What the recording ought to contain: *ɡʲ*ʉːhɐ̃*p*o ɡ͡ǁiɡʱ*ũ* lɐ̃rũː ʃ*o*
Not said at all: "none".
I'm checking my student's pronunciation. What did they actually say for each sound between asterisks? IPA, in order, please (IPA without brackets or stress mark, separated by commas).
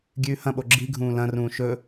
ɡʲ, ɓ, ũː, ɵ